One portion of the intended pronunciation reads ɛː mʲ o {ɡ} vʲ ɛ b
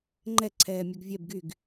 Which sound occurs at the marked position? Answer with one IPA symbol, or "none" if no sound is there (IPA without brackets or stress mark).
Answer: ɡ